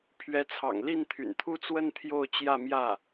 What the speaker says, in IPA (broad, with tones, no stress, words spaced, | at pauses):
pʰɥɛ˧˥t͡sʰɑ̰˨˩ŋ li˥˩nt̪ʰy̰˨˩nt̪ʰu˥t͡swə˥n t̪ʰjo˥˧ʊ̯t͡ɕjä˥˧ mjä˥˩